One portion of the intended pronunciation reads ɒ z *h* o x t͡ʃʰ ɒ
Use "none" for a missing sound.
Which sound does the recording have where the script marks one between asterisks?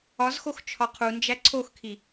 x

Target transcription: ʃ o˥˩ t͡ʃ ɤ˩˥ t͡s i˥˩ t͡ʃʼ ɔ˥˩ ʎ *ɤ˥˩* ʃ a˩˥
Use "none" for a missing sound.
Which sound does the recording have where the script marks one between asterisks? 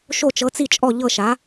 ɤ˥˩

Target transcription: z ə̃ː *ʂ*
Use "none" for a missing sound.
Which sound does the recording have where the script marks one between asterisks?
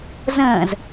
z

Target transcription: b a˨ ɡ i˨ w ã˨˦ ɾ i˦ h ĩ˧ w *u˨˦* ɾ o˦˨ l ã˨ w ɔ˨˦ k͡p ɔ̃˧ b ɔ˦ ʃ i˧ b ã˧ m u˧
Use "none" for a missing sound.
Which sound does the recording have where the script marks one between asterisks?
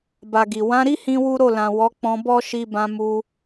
u˦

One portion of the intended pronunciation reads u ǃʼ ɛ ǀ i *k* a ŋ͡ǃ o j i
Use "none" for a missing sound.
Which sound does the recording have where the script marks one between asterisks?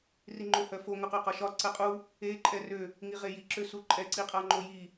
qʼ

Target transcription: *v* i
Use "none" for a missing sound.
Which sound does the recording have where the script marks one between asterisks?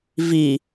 v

